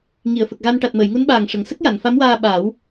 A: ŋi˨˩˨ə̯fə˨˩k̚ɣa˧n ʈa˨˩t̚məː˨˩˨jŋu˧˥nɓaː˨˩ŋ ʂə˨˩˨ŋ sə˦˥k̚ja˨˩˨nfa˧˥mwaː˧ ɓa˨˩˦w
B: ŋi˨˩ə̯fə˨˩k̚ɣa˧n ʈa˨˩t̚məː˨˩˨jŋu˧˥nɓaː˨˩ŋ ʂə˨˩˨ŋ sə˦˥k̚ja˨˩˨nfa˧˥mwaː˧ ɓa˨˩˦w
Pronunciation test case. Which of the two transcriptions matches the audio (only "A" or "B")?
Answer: A